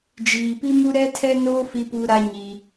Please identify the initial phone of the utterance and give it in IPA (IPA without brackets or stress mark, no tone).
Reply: d͡ʒ